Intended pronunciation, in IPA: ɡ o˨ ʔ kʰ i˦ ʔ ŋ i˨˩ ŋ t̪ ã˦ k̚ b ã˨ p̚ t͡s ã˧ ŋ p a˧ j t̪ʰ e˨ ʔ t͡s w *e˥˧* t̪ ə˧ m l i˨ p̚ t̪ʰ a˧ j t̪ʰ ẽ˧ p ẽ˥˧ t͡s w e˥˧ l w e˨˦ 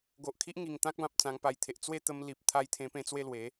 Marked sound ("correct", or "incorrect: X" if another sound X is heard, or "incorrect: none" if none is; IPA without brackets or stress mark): correct